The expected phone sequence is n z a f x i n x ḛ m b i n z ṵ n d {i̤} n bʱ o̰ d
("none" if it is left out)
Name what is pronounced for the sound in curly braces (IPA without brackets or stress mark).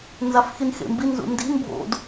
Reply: i̤